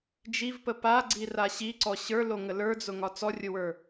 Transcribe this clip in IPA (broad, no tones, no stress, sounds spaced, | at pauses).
d͡ʒ i v p ə p a ɡ͡ǀ i r a ɕ i ǀ ɔ ɕ ə˞ l o ŋ ə l ə˞ d͡z ʊ ŋ ɒ t͡s ɔ rʲ ʊ w ə˞